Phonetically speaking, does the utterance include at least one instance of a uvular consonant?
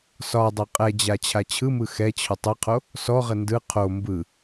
yes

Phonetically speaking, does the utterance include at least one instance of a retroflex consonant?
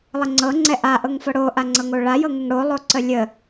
yes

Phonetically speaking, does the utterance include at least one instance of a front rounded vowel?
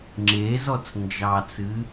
no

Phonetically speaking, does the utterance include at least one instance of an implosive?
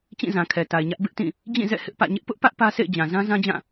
no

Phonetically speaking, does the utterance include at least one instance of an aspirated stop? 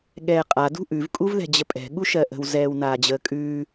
no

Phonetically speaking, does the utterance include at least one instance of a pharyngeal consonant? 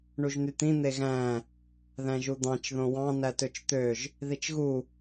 no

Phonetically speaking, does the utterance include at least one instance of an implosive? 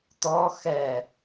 no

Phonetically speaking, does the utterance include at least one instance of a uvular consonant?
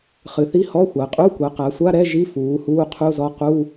yes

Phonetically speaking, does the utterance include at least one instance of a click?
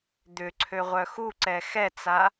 yes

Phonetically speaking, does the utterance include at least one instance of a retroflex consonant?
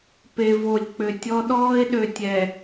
no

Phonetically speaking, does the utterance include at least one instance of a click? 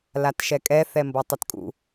no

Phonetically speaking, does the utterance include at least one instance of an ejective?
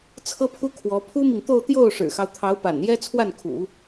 no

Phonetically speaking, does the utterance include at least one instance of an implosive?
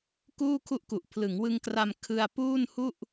no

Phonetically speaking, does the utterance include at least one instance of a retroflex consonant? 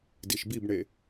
yes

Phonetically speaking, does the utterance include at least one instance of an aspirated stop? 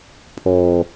yes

